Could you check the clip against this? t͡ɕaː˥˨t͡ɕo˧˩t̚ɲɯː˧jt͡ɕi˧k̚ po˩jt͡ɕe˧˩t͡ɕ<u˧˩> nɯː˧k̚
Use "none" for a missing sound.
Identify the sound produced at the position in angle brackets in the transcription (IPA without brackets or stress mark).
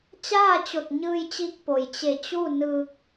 u˥˨